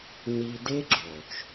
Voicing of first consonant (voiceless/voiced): voiced